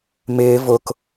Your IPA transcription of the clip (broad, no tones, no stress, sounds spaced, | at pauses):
m ɪː v ʊ k